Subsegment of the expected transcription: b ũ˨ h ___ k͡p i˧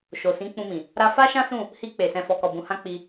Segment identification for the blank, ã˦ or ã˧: ã˧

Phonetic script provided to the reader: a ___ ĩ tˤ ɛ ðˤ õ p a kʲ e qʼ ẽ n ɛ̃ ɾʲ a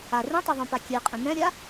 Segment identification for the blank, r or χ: r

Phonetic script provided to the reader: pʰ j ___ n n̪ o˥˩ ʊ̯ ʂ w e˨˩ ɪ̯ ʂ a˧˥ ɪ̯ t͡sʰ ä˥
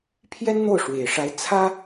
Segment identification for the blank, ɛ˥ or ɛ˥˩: ɛ˥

